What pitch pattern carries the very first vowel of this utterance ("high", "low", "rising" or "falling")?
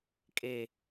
low